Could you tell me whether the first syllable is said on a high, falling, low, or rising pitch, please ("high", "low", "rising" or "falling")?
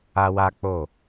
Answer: high